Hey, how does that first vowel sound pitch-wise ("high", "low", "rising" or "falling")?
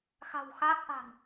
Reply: low